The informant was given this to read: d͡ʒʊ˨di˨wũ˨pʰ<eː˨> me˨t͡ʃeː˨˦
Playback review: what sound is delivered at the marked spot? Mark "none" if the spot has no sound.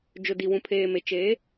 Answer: eː˨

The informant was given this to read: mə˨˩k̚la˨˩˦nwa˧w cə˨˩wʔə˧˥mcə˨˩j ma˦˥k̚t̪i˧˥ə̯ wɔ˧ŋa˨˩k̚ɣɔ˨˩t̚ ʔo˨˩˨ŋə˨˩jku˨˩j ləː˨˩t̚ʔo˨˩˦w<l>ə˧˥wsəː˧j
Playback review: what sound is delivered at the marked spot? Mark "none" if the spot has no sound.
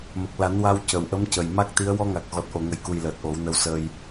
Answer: n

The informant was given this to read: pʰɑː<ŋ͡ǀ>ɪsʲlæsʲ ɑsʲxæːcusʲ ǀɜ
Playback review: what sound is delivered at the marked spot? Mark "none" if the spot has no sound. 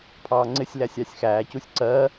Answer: ŋ͡ǀ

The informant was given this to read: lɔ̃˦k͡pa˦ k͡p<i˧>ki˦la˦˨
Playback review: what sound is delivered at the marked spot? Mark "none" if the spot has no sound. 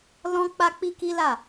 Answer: i˦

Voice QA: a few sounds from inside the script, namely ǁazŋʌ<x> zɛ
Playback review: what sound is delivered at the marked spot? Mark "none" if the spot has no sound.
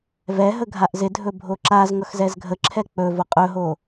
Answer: x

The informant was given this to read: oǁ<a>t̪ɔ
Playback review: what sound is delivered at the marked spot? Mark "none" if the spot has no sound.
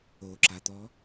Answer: a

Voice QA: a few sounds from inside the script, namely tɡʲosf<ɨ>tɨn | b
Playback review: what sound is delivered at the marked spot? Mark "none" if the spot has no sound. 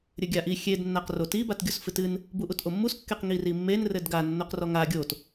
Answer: ɨ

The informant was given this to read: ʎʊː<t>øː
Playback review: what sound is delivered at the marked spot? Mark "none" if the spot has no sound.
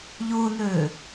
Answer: n̪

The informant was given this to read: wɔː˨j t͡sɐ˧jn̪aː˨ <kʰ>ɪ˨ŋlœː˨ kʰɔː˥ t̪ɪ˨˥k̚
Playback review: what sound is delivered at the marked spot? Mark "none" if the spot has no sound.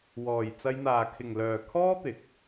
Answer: kʰ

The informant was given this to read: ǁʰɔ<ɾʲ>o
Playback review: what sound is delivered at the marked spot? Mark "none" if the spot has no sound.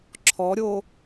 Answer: ɾʲ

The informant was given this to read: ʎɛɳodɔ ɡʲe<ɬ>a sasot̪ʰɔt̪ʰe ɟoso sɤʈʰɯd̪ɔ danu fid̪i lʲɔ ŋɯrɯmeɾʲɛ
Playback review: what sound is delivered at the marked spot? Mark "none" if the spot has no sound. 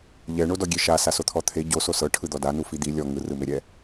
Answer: ʃ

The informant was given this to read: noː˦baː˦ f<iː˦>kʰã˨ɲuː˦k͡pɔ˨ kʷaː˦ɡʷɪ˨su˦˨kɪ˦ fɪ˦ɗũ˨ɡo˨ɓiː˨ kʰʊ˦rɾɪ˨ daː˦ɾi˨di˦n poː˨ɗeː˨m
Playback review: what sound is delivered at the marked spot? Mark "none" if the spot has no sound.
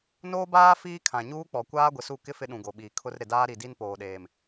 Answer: iː˦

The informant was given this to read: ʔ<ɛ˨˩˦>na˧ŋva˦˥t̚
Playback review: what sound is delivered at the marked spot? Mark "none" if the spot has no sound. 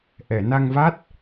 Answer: ɛ˨˩˨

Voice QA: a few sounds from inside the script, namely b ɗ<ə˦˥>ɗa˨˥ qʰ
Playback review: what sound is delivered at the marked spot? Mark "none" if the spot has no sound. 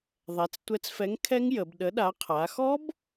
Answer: ə˨˥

